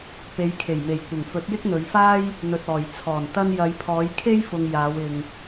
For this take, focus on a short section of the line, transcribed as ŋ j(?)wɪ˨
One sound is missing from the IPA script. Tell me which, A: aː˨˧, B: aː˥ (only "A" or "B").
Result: A